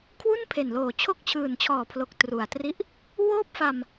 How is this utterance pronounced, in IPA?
kʰ w u˥˩ n pʰ e˨˩ n l oː˨˩ t͡ɕʰ o˦˥ k̚ t͡ɕʰ ɯː˨˩ n t͡ɕʰ ɔː˨˩ pʰ l o˨˩ k̚ t r u˨˩ a̯ t r i˦˥ ʔ | w oː˥˩ p̚ f a˧ m

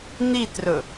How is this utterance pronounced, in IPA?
n̪ i t r ɵ

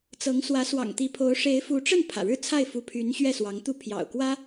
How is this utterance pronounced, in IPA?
t͡s ɤ˧˥ ŋ s w ä˧˥ s w ɑ̰˨˩ ŋ t̪ i˧˥ pʰ o˧˥ ʊ̯ ʂ e˧˥ ɪ̯ f u˧˥ ʈ͡ʂ ə˥˩ n pʰ ä̰˨˩ ɻ ɻ̩˥˧ t͡sʰ a˥˩ ɪ̯ f u˧˥ pʰ y˧˥ n ɕ ɥ ɛ˥˩ s w ɑ˧˥ ŋ t̪ u˥˩ pʰ j ɑ̰˨˩ ʊ̯ k w ä˥

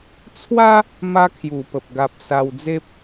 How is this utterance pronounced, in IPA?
t͡sʰ w a˦ | m a˦ kʰ j u˨˩ p ə˨ p̚ ɡ a˨ p̚ s a˧ w d͡z e˦ p̚

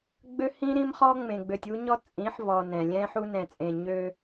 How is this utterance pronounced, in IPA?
ɡ͡b ø˦ h ĩ˦ ɾ ĩ˦ m χ ɔ˦ ŋ͡m ẽ˨ ɡ͡b ø˨ tʲ u˦ ɲ ɔ˦ t͡sʼ ĩ˨˦ ħ v ɔ˨ n ɛ̃˨ lʲ ɛ̃˦ ħ u˦ n ɛ̃˨ t͡sʼ ẽ˨ ɲ ø˦

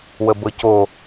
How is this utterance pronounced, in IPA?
w ə b ɤ c o

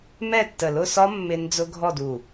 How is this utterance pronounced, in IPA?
m ɛ˥˨ tː ə˧˩ l ʊ˥˨ s ɒ˦˥ mː ɪ˦˥ n d͡z ʊ˦˥ ɡʱ ɔ˥˨ d u˧˩

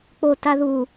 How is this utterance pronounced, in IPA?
k͡p o t a ð u

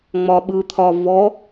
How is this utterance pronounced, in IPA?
ŋ͡m ɒ ɓ ɯ t̪ʰ ɒ v ɔ

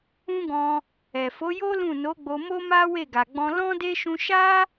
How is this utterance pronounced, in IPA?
ũ˦ ɡ ɔ̃˧ | ɛ˨ f o˨˦ j o˦ l ũ˦˨ n o˨˦ ɡ͡b o˧ m o˦ m a˦ w e˦˨ ɡ a˨ ɡ͡b ɔ̃˧ l ɔ̃˦ d e˦ ʃ ũ˧ ʃ a˦

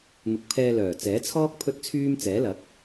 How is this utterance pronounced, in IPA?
n̪ ʊ˨ k̚ pʰ ɛː˧ l œː˨˩ t͡s ɛː˨˥ t͡sʰ ɔː˥ k̚ pʰ ɵ˥ t̚ t͡sʰ yː˥ m t͡s ɛː˨˥ l ɐ˨˥ k̚

